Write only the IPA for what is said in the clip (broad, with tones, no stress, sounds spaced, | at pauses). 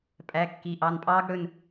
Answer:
pʼ æ˩˧˩ kː i˩˧˩ ʔ ɑ˩˧˩ n pʼ ɑː˦˥ ɡ ɽ ɵ˩˧˩ n